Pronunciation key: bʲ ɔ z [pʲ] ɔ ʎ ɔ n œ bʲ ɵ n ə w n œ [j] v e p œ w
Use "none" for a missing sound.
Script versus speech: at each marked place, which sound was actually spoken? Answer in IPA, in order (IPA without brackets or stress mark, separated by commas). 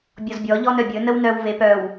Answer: bʲ, w